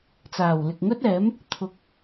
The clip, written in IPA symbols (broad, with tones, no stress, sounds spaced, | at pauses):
t͡s aː˨˩ w l ɪ˨ k̚ ŋ ɵ˥ t̚ ɛː˨˥ m | t̪ʰ ʊ˧ k̚